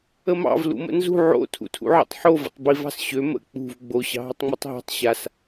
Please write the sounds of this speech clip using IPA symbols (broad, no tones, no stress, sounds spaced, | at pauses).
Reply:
ə m ɑ̰ v l ṵ m ə̰ n z ṳ ʕ o̰ tʰ ṵ tʰ ṵ ʕ ə̰ tˤ ħ o v ə̰ tˤ b i v ɑ̤ s ɕ ø m ə̰ k͡p ṳ v ɡ͡b o ɕ ɑ̤ ɦ ə tˤ ŋ͡m u tˤ ɦ ɑ̤ tˤ ɕ a s